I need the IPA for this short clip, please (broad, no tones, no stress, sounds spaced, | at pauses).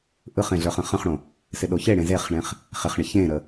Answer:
ʔ ɯ χ ẽ ɮ ə˞ χ ə̃ χ ə̃ χ ɽ õ | s ɪ ɗ o ç e ɽ ẽ z e χ ɳ ẽ χ | χ ɪ χ ɳ ɪ ç ẽ ɾ ə